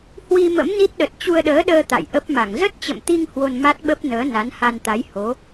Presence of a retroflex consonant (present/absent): absent